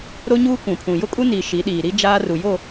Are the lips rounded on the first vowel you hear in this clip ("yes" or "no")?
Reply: yes